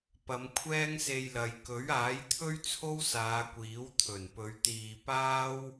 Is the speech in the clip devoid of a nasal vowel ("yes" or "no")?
yes